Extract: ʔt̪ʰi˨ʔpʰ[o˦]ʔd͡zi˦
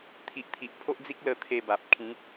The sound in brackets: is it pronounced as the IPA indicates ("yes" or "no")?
yes